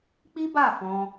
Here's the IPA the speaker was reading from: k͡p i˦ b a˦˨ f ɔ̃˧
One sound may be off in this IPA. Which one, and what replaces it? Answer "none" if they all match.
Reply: none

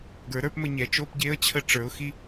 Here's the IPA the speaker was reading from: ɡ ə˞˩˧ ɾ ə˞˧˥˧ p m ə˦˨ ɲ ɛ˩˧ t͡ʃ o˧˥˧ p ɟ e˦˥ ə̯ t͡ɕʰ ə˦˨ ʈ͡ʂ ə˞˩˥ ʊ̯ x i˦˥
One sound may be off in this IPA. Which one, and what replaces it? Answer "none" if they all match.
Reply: none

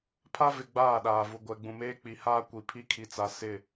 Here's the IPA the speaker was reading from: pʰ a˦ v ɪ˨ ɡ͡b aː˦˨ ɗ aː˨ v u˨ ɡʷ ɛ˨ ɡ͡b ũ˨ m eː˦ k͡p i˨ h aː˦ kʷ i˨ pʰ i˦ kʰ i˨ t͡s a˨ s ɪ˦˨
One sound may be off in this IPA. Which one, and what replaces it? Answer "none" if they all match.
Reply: none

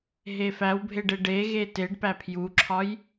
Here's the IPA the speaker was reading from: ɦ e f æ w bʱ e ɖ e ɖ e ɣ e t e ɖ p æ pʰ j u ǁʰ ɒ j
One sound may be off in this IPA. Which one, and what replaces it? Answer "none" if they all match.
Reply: none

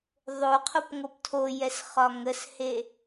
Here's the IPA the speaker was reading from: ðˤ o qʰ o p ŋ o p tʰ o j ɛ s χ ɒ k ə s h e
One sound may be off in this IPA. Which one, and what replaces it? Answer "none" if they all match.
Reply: k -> ŋ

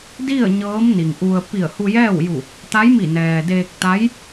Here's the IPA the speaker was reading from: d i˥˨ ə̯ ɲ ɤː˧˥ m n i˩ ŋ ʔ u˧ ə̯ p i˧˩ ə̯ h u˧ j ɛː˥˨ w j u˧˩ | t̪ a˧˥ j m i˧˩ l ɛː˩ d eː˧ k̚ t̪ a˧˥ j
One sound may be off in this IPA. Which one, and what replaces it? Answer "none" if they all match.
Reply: l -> n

